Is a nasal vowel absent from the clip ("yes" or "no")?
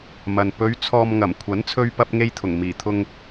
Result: yes